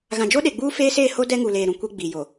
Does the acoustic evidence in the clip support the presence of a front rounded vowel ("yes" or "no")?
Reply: no